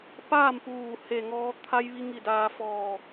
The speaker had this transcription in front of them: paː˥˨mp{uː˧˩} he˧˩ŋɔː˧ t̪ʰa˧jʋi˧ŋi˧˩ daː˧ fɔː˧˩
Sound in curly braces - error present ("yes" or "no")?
no